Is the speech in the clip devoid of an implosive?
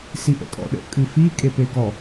no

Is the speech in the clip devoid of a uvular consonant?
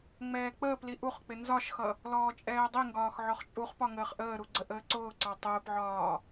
no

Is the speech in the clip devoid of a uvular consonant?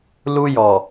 yes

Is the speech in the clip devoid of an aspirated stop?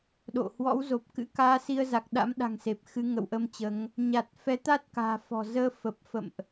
yes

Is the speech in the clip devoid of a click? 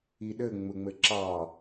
no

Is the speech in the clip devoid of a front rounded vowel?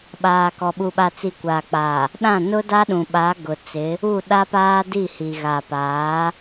yes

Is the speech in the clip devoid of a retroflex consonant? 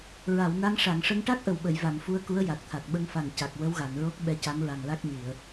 no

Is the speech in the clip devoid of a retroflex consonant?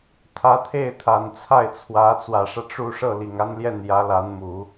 no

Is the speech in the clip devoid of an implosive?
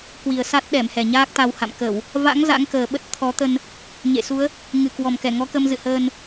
no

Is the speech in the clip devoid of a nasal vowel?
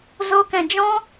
no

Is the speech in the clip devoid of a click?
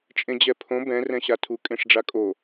yes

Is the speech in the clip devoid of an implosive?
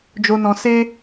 yes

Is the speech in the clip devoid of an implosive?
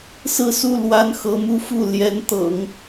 yes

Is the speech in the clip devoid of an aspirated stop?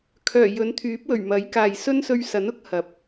no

